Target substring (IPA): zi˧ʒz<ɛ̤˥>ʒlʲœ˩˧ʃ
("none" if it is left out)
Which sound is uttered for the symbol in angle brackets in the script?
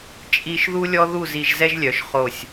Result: ɛ˥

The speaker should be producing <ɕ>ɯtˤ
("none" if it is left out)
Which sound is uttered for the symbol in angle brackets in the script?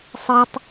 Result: sˤ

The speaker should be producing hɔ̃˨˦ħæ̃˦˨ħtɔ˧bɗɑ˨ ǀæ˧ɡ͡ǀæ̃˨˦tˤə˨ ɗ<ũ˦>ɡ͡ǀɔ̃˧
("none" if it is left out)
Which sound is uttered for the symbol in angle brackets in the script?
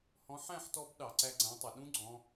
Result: ũ˦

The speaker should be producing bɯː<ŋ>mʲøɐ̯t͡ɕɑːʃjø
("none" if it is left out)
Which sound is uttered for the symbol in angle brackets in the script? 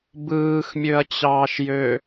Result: x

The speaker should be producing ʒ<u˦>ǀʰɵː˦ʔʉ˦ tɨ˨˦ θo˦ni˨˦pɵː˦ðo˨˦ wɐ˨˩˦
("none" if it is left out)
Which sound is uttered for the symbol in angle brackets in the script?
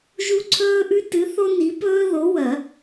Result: u˦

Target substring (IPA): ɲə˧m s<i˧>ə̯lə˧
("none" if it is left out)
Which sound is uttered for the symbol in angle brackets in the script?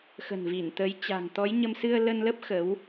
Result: ɨ˧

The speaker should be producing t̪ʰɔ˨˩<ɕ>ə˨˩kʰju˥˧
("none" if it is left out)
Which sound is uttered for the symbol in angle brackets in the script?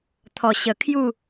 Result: ɕ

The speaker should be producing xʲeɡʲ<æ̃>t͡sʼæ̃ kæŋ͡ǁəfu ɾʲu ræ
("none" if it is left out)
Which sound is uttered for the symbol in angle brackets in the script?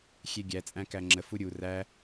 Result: æ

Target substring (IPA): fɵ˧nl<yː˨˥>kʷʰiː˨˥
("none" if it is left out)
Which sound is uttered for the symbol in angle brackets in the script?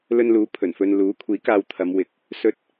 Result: uː˨˥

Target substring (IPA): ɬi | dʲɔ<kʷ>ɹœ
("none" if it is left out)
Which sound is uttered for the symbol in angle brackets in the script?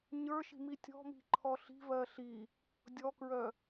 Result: k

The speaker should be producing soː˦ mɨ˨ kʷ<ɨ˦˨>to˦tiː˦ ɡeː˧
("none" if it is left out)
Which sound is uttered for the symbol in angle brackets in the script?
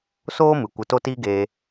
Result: ɨ˨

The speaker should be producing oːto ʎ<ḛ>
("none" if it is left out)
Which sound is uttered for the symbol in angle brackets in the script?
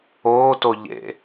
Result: ḛ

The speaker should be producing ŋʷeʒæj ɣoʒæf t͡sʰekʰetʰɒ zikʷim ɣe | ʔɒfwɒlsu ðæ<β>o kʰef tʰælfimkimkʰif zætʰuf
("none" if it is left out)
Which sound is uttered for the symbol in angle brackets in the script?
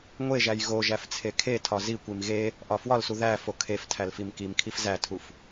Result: f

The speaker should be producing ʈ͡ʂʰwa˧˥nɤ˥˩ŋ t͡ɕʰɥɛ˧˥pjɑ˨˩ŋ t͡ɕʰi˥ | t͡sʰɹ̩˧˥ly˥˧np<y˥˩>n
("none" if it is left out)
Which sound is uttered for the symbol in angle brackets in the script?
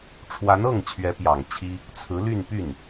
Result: y˥˩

